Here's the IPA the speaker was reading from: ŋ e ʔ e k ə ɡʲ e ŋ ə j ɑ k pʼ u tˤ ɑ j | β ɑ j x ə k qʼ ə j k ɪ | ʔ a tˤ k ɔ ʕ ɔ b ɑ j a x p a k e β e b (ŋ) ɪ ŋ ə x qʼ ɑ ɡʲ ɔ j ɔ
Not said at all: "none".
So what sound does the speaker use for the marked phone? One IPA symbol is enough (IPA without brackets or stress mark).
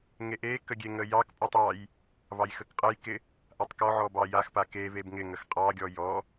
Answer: ŋ